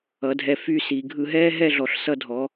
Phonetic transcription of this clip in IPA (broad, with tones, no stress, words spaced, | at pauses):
ʌ˩˧dʱɛ˧˩ fy˥˧si˩˧ ɡʱɯ˧ɦɛː˥ ɦɛ˥˧ɮɔ˩˧ɬ sʌ˧dʱɔ˩˧